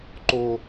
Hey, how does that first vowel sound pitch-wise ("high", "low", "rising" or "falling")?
high